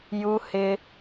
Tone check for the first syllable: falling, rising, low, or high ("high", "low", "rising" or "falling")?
high